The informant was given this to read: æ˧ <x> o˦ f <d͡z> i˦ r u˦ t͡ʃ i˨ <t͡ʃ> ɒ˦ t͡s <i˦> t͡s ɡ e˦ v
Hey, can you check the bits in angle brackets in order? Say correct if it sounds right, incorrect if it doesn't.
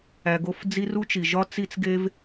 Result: incorrect: ɡ, correct, incorrect: ʒ, correct

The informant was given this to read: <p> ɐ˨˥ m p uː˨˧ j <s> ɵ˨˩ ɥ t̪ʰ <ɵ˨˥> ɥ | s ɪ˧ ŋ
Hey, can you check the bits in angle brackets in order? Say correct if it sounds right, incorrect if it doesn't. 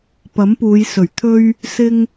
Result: correct, correct, incorrect: ɵ˧

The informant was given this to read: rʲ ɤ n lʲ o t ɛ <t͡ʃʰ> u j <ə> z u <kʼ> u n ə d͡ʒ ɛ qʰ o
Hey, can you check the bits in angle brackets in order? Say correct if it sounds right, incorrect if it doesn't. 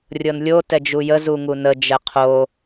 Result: incorrect: d͡ʒ, correct, incorrect: ŋ

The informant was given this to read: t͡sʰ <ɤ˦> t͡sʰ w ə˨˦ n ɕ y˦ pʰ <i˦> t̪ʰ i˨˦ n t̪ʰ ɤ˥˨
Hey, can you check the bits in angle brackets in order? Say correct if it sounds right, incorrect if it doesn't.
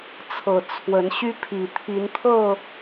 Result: incorrect: ɤ˨˩, incorrect: i˨˩

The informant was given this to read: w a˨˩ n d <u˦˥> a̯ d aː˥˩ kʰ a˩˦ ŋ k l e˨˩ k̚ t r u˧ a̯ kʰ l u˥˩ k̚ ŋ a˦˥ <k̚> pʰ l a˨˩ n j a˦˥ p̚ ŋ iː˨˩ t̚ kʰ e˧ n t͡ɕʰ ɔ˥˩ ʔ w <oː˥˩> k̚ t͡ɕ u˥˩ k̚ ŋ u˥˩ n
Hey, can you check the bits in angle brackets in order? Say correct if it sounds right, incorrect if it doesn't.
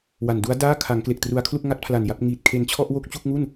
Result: correct, incorrect: t̚, incorrect: o˥˩

